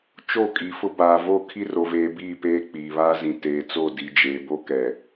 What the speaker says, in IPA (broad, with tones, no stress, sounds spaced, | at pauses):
t͡ʃ o˦˨ kʼ i˨ f ʊ˦ b aː˨ v o˦˨ kʰ i˦ r o˨ v eː˨ b iː˦˨ p eː˦ k͡p iː˨ β aː˦ z ĩ˨ t eː˨ t͡s o˦˨ d i˨ d͡ʒ eː˨ b o˦ k ɛ˨